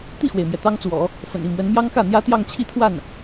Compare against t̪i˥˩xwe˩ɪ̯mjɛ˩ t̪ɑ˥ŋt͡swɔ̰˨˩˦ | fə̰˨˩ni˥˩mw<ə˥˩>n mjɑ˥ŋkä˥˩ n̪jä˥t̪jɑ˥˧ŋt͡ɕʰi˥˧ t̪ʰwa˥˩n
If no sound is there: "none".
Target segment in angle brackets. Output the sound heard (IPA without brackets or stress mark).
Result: ə˧˥